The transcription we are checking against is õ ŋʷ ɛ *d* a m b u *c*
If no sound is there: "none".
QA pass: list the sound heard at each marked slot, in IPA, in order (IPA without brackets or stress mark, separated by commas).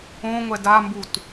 d, t